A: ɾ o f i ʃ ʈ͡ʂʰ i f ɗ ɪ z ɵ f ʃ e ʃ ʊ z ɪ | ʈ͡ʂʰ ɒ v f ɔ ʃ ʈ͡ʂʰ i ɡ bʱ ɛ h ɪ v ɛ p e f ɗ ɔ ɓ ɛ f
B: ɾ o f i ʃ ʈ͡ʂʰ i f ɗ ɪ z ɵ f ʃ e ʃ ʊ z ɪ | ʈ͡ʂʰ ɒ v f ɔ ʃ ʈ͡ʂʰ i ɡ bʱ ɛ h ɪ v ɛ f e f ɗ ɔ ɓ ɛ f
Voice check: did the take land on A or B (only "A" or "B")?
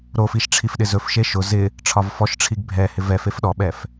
B